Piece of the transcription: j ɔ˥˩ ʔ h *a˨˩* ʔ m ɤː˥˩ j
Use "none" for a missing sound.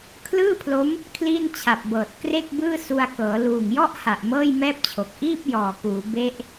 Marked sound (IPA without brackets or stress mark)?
a˨˩